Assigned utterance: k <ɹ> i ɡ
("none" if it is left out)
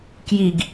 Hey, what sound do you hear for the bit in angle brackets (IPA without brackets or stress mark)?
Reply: j